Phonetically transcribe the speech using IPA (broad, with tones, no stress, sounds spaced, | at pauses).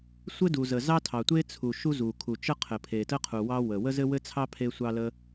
sʷ ɘ˥ d u˩ z ə˩ z ɑ˥ tʰ ɑ˩ tʷ e˥ t͡sʰ u˩ ʃ u˥ z u˩ kʰ u˩ t͡ʃ ə˥ qʰ ɘ˩ pʰ e˩ t ə˥ qʰ u˩ w ɑ˥ w ə˩ w ə˥ z ɘ˥ w ɘ˥ t͡sʰ ɑ˥ pʰ e˥ sʷ ɑ˥ l ə˥